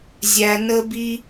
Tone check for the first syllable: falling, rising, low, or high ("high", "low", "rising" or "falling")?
high